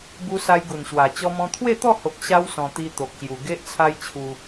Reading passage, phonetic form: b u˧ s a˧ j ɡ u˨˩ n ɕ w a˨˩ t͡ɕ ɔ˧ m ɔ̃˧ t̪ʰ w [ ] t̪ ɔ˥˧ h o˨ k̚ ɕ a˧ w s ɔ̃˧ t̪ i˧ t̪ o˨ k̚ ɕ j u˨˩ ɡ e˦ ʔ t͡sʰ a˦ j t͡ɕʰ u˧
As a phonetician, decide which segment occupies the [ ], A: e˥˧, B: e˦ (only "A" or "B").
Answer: A